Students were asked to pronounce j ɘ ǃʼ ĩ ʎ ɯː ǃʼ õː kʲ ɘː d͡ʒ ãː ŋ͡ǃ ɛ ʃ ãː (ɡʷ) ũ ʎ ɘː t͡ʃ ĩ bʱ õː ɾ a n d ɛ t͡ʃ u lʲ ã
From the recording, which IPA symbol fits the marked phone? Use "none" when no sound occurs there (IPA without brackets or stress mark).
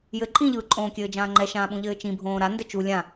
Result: ɓ